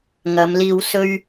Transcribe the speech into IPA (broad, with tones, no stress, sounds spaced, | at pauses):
ŋ ɐ˨˧ m l iː˧ w s ɵ˥ ɥ